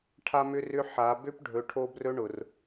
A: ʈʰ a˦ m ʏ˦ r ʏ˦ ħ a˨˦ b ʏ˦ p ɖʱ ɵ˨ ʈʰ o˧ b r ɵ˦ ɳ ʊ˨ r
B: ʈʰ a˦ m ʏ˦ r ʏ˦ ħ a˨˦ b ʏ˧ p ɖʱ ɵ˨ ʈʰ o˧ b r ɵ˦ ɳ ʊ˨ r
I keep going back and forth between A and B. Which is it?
A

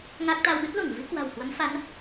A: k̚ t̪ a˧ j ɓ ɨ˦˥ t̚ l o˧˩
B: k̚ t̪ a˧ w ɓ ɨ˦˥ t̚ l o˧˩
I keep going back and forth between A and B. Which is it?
B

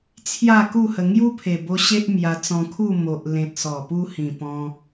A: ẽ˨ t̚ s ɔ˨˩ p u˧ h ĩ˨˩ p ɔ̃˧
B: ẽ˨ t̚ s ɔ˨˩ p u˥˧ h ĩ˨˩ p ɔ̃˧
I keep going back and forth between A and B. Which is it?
A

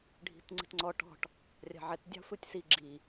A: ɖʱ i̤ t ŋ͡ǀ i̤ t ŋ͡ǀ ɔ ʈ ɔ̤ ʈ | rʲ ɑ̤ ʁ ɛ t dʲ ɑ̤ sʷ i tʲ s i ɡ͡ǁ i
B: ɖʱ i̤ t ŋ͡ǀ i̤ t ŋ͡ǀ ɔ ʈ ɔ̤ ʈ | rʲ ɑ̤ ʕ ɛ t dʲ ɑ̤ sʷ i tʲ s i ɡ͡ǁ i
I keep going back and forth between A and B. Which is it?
B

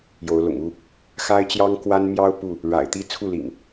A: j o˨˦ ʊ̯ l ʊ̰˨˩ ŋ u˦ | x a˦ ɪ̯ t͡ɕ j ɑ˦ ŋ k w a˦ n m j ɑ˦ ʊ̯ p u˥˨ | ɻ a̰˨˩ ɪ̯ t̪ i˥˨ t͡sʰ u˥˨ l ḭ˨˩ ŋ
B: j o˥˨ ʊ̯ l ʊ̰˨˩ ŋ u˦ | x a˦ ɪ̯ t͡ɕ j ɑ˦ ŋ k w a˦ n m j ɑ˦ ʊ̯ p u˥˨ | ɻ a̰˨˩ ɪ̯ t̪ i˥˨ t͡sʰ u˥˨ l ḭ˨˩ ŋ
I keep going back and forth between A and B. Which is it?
A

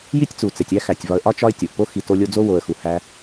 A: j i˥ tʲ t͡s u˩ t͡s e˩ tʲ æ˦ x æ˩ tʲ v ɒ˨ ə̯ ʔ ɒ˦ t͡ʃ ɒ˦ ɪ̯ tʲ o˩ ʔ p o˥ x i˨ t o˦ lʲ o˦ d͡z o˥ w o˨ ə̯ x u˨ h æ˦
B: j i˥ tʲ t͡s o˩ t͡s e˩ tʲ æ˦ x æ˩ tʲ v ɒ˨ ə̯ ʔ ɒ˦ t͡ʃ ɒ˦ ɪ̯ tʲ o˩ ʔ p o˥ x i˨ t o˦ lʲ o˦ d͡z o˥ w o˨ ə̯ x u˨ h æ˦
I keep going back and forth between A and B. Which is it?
A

